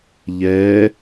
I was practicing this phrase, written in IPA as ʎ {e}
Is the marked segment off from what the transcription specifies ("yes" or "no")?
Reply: yes